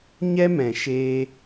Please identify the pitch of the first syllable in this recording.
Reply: high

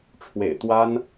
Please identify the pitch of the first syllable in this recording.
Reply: low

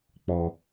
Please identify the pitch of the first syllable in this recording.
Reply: low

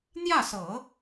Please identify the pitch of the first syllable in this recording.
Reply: falling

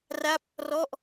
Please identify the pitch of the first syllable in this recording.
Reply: falling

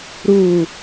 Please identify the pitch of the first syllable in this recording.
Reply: low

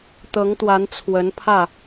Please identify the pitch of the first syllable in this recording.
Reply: rising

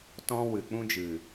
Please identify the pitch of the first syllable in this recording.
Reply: high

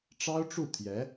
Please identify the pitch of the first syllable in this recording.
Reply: high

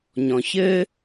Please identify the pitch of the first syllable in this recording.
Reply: low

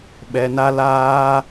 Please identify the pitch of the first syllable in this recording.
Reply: low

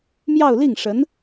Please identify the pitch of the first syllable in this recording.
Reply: falling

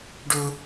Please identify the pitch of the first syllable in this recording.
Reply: high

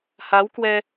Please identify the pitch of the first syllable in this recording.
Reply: rising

